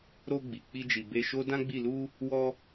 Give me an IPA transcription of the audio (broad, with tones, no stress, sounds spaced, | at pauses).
ɾ o˧ ɡ͡b i˨ k͡p i˧ d͡ʒ i˨ b e˧ ʃ o˦ d ã˦ ɡ͡b i˦˨ l u˧ | w ɔ˧